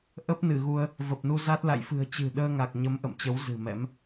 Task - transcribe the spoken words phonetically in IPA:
ʔ ə˦˥ p̚ n ɨ˧˩ ɣ u˧ ə̯ | v ə˨˩ p̚ n u˧ z a˦˥ t̚ l a̰˧˨ j f ɨ̤˨˩ ə̯ t͡ɕ ɨ̤˨˩ ɗ əː˧ ŋ a˨˩ k̚ ɲ ə˨˦ m ʔ ə̰˧˨ m t͡ɕ ə˨˦ w z ɨ̤˨˩ m ɛ̰˧˥ m

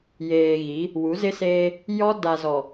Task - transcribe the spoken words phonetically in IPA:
j eː˨ ɣ i˨˦ | w u˨˦ z ɪ˦ s eː˦ | j ɔ˦ d a˨ z ɔ˨

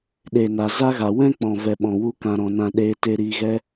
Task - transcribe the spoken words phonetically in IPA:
ɗ e˨ n a˨ z a˦ ɣ a˨ w ɛ̃˦ k͡p ɔ̃˨ v ɛ˨ ɓ ɔ̃˨ w u˧ k ã˨ ɾ ɔ̃˨ n ã˨ ɗ eː˧ t e˧ ɾ iː˧ ɣ ɛ˧

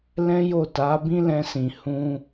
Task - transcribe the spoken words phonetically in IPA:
l ɛ̃˦ j o˦˨ t a˨˦ b ĩ˦ l ɛ̃˧ s ĩ˨ h ũ˧

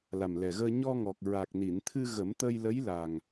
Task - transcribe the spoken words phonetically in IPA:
l a˨˩ m l ɛ˨˩ ɣ əː˧ ɲ ɔ˧ ŋ ɔ˨˩ k̚ ɹ a˨˩ k̚ n i˨˩˨ n t̪ʰ ɨ˧ ɣ ə˨˩˦ m t̪ ə˧ j l ə˧˥ j l a˨˩ ŋ

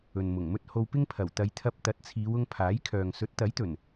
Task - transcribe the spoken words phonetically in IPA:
ɵ˨ n m ʊ˨˩ ŋ m ɵ˥ t̚ h o˧ w p ɪ˥ ŋ pʰ ɐ˨˩ w t̪ ɐ˨˧ j t̪ʰ ɐ˧ p̚ t̪ ɐ˨˥ t̚ t͡sʰ iː˨˧ w ʊ˧ ŋ pʰ aː˨˥ j kʰ œː˨ ŋ s ɵ˨˥ t̚ t̪ ɐ˨˥ j t̪ ɵ˨˩ n

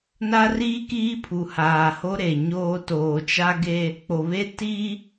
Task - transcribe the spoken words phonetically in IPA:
n a˦ r iː˦ k iː˦ pʰ u˨ h aː˨ h o˦ ɾ e˨ ɲ oː˦ t oː˨ t͡ʃ a˦ ɡ e˦ | k͡p o˨ β e˦ t i˦

